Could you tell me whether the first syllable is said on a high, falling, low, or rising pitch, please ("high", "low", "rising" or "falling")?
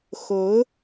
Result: rising